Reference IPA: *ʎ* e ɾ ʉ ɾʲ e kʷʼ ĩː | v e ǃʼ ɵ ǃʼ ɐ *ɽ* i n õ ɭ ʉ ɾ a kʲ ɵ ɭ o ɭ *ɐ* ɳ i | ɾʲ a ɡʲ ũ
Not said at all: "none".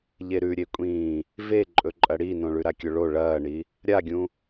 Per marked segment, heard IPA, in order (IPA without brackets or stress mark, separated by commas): ʎ, ɽ, ɐː